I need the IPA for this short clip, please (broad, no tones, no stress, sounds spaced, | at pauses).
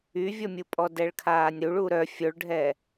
y vʲ ɔ mʲ u pʼ ɔ d ɛ ɭ kʰ aː nʲ ɾ u ɭ u ɾ œ fʲ o ɭ ɖʱ ɛ